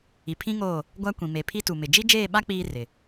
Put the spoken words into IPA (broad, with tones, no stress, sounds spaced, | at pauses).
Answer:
i˨ pʰ ĩ˦ ŋ oː˦˨ | ɡʷ a˦ kʷ ĩ˨ m e˨ pʰ i˦ t u˨ m ɪ˨ d͡ʒ i˦ d͡ʒ eː˦˨ ɓ a˦ k͡p iː˦ r ɪ˨